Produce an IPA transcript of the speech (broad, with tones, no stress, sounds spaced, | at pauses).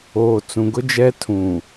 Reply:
oː˨ t͡s ũ˨ ɡ ʊ˦ d͡ʒ ɛ˦ tʰ ũ˨